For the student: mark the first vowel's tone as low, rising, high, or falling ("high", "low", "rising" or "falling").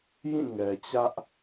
falling